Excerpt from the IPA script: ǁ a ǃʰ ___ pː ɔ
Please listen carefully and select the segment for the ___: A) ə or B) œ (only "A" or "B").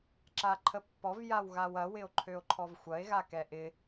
A